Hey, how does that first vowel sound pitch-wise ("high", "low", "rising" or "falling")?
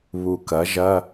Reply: low